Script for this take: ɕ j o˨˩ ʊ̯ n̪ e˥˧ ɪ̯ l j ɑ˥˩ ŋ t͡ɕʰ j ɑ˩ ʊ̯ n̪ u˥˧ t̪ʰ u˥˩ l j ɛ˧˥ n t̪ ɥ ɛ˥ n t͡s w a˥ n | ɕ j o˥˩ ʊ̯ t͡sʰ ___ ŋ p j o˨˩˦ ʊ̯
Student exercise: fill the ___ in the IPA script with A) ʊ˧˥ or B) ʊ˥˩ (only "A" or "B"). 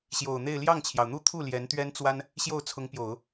A